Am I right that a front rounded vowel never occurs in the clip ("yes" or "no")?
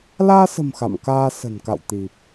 yes